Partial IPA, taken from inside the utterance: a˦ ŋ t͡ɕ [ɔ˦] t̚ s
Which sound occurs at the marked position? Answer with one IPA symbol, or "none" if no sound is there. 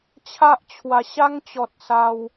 ɔ˦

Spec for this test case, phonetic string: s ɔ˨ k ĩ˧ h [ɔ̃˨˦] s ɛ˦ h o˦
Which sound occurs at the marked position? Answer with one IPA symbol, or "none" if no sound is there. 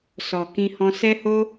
ɔ̃˧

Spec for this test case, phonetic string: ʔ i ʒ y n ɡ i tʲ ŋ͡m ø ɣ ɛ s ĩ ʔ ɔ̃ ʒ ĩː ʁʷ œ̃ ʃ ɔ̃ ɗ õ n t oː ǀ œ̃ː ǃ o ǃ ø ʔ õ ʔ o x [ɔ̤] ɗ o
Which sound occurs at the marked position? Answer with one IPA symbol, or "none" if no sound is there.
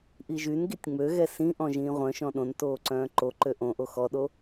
ɔ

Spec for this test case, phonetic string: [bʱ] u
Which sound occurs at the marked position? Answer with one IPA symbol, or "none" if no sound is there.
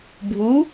bʱ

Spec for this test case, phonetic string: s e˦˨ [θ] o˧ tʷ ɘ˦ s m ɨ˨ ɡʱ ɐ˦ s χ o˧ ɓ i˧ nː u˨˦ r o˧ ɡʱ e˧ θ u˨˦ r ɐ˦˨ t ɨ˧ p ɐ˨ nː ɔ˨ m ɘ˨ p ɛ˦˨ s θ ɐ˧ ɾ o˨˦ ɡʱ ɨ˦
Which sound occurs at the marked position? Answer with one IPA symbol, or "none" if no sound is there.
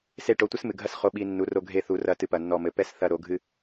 ʈ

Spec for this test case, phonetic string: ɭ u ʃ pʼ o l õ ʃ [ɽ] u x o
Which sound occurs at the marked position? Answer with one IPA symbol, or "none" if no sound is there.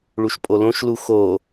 l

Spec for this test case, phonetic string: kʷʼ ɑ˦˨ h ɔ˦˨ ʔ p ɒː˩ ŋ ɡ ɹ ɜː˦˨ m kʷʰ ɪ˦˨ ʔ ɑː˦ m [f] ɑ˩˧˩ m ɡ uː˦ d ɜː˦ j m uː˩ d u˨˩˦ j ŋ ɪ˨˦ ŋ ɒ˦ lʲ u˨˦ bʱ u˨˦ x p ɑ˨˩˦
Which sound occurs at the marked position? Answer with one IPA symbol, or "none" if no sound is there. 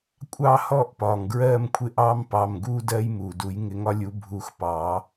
p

